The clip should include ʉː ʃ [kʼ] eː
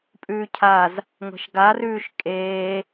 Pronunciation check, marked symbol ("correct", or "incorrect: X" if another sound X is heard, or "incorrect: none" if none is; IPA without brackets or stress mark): correct